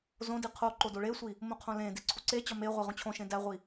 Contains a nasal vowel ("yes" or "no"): yes